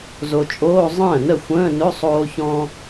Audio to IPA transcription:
z o˨ t͡ʃʼ oː˧˥˧ zˤ ə̃ː˥˩ n ə˥˩ xʷ ə̃ː˧˥˧ n ɵ˧˥˧ sˤ oː˥ ç ɔ̃˥

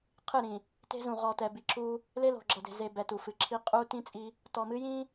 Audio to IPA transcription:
qʰ ɨ˦˨ ɾ ĩ˨ | t e̤˦ z ũ˨ ʁ ɔ˨ t ɛ˨ b i˨ ǁ u˦ | l e˦ l o̤˨ ɡ͡ǁ ʌ˨ d e̤˨ z e˨ b ɛ˨ t u˨ f ɨ˨ ǁʰ i˦ qʼ u˦ t ĩ˦ t͡sʼ i˦ | t ɔ˨ m ɨ˦ j ĩ˦

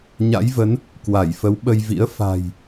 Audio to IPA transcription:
ɲ a̰˧˥ j v ə˨˦ n | k w a˧˩ j f ə˨˦ w ɓ ə˧ j v ḭ˧˥ ə̯ f a̤˨˩ j

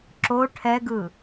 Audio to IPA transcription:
ǁ o ʈʰ ɛ ɡ ɯ

